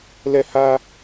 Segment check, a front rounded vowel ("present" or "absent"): absent